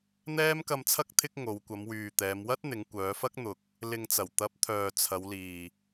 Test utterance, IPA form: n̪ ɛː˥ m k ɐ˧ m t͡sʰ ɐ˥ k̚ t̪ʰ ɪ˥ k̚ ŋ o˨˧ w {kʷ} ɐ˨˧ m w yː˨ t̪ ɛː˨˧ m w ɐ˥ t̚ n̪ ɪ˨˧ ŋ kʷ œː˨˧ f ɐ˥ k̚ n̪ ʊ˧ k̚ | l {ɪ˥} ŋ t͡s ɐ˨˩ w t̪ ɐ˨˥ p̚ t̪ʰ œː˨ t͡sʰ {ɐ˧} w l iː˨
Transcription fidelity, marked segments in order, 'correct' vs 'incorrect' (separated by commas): correct, incorrect, incorrect